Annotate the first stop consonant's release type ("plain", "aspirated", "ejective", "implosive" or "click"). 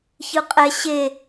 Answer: ejective